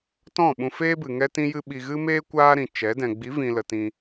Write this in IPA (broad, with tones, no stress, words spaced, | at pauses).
tɔ̃˦˨ɓũ˧ feː˦bɨ˨ ŋɛ˦tĩ˦jɨ˦ ɓi˧ɣɨ˦meː˦ kʷaː˦ɾĩ˨t͡ʃɛ˨˦ dɛ̃˨ɡ͡bi˨˦vĩ˨lə˨ tĩ˧